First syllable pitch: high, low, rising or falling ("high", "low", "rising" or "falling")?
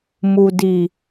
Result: low